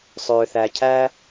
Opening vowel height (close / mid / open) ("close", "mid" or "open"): mid